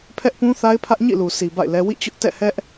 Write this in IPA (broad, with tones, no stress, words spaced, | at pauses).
pʰɛ˦ʔpũ˦θa˦ɪ̯pʰä˦ʔ ɲḭ˦˨lu˨sʰi˨ ba̰˦˨ɪ̯lɛ˦ wḭ˦˨t͡ɕʊ˦ʔ tɛ̰˦˨hɛ˦ʔ